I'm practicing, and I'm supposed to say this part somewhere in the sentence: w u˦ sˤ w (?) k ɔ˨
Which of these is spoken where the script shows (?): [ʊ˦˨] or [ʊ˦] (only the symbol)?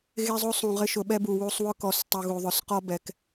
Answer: ʊ˦